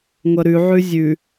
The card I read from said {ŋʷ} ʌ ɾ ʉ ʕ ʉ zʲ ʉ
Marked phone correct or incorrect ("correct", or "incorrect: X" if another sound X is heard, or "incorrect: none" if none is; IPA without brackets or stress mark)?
correct